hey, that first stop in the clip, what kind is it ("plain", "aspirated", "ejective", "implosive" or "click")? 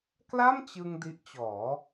plain